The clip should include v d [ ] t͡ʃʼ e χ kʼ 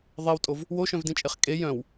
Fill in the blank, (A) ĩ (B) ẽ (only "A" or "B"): A